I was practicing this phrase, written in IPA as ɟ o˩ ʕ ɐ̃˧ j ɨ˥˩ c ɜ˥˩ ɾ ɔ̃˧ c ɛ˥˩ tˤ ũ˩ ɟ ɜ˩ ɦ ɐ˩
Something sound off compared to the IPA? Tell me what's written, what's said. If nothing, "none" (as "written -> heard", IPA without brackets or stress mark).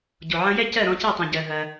ɨ˥˩ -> ɛ˥˩